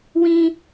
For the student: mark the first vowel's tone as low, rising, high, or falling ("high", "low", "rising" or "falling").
high